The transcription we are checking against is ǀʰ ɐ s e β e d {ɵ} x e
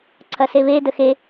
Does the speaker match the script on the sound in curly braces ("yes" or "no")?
no